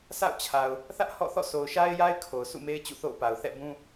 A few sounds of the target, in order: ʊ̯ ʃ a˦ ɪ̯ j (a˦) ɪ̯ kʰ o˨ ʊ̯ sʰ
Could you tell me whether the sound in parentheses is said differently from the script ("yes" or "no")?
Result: no